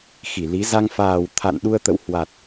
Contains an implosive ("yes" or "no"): yes